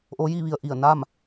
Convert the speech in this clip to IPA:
ʔ o˧˥ j i˥˨ ʋ i˧ ə̯ ʔ i˧˩ ə̯ n aː˥˨ m

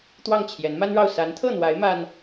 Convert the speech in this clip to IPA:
t̪ w ɑ˥˩ ŋ t͡ɕʰ j ɛ˧˥ n m a˥ n ɻ ɑ˥˩ ʊ̯ s a˧˥ n t̪ʰ ɤ˥˩ n̪ w a˧˥ ɪ̯ m a˥ n

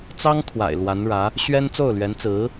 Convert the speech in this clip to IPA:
t͡s ɑ˥ ŋ t̪ʰ w a̰˨˩ ɪ̯ l w a˧˥ n ɻ ä˧˥ | ɕ ɥ ɛ˥ n t͡s o˥˩ ʊ̯ l ɥ ɛ˧˥ n t͡s ɹ̩˧˥

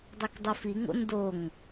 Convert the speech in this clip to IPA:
dˤ ɛ k dˤ u f i ŋ o̰ n d o ŋ

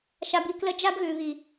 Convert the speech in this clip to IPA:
ʃ a˧ b i˧ k l ə˦ d͡ʒ a˦ b ɣ ʉ˨ β i˨

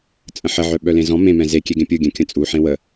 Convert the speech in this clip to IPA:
t͡sʼ ə̃ ħ ə ʕ œ ɓ œ l ẽ z ɔ̃ m ẽ m ɛ̃ z e kʲ e ɡ ẽ pʲ ɯ ɡʲ ɛ̃ kʲ ə̃ t͡sʼ u ħ ẽ w ə

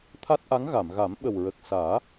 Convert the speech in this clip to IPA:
t̪ʰ a˦˥ t̚ ʔ a˧˥ ŋ ɣ a˨˩˨ m ɣ a˨˩˦ m ɓ ə˨˩ w ɹ ə˨˩ k̚ s aː˨˩˦

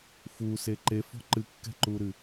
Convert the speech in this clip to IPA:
f u s e ǃ e f ɔ̤ ǃ ɨ kː ɛ̤ ǃ uː ɾ ɨ

